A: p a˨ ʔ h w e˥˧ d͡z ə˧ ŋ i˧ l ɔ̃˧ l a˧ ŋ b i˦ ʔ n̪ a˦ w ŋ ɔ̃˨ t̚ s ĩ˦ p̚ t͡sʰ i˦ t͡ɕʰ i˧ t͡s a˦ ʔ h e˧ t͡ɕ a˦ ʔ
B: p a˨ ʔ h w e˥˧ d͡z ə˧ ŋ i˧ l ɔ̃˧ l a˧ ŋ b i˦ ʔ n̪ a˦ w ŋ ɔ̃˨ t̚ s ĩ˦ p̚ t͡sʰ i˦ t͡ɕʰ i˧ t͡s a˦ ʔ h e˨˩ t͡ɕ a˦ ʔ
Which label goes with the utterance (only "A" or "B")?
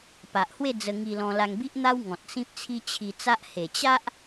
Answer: B